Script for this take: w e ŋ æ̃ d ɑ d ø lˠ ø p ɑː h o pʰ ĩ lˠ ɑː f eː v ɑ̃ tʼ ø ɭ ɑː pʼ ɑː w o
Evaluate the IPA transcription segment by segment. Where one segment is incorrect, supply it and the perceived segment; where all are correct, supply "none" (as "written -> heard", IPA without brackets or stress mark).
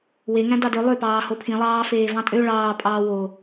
none